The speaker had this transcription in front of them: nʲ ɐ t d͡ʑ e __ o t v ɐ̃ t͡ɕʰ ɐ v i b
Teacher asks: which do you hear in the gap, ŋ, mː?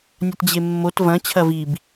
mː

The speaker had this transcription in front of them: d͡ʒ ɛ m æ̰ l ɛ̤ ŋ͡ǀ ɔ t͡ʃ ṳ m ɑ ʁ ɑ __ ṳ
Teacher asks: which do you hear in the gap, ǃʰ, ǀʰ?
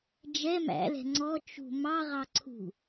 ǀʰ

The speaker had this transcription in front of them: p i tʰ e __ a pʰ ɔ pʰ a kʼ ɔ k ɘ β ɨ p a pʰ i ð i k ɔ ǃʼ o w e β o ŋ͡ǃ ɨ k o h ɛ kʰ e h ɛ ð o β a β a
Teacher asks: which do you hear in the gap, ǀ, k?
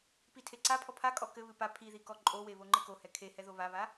ǀ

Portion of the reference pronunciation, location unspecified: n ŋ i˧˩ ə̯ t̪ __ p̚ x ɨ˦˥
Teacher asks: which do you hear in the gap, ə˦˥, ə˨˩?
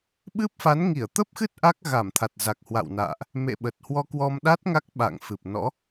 ə˦˥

